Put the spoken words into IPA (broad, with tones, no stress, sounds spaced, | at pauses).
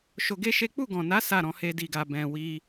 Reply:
ʃ o˧ ɡ e˦ ʃ e˦ k͡p u˦˨ ɡ ɔ̃˨ n a˨˦ s a˦˨ ɾ ɔ̃˧ h e˧ d i˨ ɡ a˨ b ɛ̃˨ w i˧